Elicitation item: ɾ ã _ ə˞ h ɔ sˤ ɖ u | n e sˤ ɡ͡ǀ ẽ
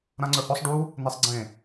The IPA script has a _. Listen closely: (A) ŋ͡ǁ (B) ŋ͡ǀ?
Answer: B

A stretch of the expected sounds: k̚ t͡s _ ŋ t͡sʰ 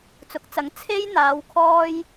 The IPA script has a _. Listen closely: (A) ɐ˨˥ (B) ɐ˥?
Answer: A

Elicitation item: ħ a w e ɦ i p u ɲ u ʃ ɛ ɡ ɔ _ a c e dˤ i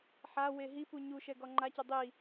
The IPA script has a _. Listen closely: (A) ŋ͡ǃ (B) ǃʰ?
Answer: A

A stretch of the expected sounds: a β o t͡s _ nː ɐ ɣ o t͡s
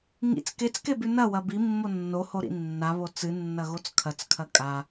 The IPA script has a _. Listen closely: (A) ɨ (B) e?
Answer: A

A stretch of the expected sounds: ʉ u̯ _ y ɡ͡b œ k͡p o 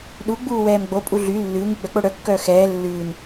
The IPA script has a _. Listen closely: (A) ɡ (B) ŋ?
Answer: B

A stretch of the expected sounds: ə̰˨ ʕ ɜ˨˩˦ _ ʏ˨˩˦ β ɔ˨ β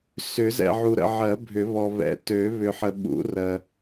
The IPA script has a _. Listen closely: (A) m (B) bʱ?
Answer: B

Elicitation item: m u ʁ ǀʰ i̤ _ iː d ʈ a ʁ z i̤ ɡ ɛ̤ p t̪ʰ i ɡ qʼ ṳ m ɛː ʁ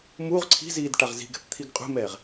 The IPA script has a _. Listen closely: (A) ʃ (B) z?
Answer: B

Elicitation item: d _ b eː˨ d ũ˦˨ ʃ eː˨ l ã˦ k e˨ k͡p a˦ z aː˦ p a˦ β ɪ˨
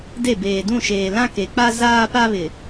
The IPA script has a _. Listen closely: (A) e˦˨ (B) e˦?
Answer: A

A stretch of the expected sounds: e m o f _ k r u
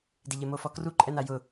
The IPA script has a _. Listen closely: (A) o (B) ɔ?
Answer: B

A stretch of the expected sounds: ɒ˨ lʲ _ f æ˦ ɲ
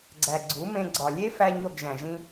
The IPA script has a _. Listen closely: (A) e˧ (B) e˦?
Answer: B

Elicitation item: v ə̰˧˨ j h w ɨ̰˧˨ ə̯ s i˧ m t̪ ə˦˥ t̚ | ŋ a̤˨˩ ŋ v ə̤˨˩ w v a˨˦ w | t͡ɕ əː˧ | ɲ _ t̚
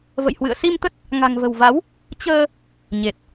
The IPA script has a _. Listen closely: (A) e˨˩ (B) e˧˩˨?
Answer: A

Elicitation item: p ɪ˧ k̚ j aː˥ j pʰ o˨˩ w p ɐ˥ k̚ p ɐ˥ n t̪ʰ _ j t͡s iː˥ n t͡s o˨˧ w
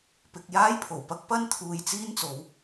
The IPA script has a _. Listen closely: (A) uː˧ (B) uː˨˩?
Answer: A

